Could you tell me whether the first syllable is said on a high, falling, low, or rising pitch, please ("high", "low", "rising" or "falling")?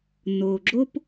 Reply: low